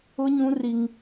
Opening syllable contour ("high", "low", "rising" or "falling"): high